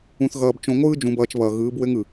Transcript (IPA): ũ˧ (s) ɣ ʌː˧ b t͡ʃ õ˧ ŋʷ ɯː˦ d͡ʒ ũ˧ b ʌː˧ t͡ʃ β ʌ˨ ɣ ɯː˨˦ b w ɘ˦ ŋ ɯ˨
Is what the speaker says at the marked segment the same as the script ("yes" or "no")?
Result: no